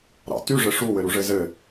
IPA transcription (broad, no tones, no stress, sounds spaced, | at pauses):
ɾ ɑ̰ t y ʐ ɘ ʂ u w ɘ ɾ u ʐ ɘ z ɘ